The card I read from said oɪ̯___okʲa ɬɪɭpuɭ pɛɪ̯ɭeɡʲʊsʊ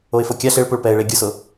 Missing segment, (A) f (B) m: A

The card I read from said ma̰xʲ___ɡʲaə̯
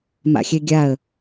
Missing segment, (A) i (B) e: B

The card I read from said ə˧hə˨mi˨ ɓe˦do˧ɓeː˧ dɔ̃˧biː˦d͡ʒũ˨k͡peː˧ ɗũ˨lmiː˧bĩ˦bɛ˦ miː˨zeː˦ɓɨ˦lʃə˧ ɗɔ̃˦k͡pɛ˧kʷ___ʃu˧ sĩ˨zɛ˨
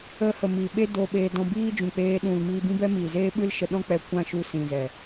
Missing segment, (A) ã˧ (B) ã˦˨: B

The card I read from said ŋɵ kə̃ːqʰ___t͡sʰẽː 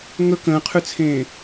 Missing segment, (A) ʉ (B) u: A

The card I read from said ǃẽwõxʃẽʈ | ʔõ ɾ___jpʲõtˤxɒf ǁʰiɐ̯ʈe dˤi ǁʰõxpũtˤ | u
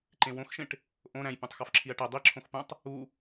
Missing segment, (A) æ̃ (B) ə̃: A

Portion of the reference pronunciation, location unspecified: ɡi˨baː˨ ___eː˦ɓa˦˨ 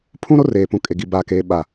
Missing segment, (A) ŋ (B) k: B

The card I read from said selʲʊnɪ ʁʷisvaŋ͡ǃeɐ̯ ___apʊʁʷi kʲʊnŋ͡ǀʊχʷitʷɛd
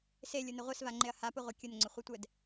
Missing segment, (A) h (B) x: A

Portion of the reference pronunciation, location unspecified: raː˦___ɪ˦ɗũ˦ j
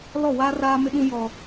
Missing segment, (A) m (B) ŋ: A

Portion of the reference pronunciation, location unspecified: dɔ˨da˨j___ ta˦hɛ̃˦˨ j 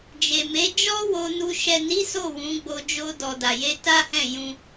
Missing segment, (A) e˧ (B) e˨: A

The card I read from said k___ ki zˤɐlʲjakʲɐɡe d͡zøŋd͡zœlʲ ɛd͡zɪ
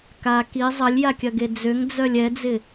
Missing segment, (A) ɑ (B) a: B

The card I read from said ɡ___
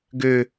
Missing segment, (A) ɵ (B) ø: B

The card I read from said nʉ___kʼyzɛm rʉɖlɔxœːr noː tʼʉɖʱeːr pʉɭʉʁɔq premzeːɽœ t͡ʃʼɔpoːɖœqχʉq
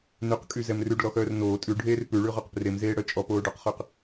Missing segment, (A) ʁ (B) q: B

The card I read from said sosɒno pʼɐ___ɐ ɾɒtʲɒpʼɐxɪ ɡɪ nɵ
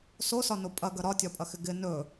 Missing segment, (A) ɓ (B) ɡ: B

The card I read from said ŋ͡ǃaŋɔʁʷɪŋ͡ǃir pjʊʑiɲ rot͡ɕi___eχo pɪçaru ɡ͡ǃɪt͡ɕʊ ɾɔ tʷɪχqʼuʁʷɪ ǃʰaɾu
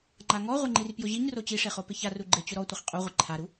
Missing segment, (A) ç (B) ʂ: B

